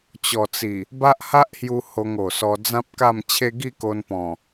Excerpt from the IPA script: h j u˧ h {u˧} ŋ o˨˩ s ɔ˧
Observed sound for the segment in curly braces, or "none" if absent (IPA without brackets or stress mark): o˧